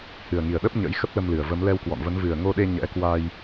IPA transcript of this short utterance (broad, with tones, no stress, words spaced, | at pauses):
hɨ˨˩ə̯ŋi˨˩ə̯ ɗə˦˥p̚ɲə̰˧˥j xə˦˥p̚lə˧mlɨ˨˩ə̯ və˨˦m lɛ˧wkwɔ̰˧˨nvə˨˦n vɨ˨˩ə̯ŋo˧ɗe˧ ɲɛ̰˧˥ kwa˧j